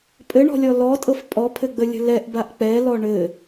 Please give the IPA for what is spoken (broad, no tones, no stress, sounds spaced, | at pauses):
pʼ ɘ ɳ ɔ̤ lʲ ɔ l ɔ tʼ ɤ f pʼ ɔ pʰ ɘ ɡ͡b ə lʲ ə̤ l ɛ ʔ b a ʔ k͡p ɛ l ɔ ɳ ɘ